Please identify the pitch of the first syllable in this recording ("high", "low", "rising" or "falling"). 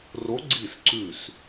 rising